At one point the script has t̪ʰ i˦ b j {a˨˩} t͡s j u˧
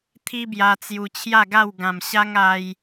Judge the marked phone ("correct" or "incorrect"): incorrect